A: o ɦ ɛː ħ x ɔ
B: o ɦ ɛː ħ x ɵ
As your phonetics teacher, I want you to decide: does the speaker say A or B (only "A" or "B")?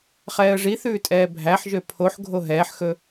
B